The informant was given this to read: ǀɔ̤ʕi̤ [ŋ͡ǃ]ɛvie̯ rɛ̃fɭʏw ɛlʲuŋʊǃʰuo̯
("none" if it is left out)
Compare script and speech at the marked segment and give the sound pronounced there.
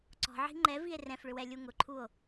ŋ͡ǃ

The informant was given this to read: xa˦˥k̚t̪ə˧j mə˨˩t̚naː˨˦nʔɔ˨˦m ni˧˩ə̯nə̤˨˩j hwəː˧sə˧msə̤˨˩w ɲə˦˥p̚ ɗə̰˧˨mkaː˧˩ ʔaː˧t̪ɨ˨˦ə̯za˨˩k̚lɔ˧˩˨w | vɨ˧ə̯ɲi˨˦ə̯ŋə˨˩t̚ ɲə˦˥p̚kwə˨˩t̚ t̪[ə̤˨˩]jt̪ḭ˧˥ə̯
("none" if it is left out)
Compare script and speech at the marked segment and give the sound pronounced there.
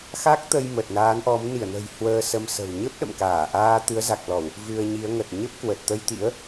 ə˧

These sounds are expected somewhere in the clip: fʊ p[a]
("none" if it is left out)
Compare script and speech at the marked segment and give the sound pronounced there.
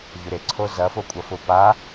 a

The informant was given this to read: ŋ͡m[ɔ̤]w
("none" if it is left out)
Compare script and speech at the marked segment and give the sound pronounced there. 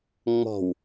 ɔ̤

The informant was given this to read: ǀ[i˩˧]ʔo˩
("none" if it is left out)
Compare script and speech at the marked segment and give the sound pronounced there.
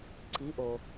i˩˧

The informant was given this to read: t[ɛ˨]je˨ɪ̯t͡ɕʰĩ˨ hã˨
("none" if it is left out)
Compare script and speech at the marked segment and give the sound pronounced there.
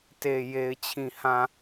e˨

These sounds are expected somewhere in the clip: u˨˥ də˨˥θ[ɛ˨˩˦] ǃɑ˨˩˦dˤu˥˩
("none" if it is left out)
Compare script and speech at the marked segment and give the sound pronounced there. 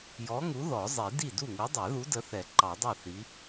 ɛ˨˩˦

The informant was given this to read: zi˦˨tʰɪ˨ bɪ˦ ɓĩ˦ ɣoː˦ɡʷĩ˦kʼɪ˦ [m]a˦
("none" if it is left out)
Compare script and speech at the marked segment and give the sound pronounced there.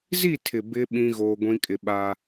ɓ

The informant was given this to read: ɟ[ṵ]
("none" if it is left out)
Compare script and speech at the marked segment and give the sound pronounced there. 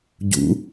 ṵ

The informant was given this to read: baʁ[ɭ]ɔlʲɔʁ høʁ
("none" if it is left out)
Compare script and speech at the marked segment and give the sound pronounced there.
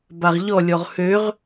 ʎ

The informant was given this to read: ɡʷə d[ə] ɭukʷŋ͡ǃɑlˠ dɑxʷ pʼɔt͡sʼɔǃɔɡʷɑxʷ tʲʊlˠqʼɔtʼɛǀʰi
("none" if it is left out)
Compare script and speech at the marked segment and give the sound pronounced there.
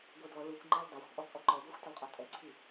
ɔ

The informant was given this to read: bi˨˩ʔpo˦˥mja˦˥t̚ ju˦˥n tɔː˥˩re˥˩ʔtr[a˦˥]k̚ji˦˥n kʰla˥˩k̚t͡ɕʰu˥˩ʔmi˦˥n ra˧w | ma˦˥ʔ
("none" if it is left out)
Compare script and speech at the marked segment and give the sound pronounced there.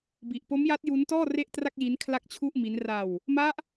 a˥˩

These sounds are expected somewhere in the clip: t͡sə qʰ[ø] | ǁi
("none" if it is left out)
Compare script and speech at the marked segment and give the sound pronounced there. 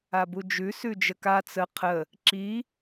ə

